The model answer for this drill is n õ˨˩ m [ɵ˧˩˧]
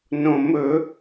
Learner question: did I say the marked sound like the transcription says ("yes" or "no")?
yes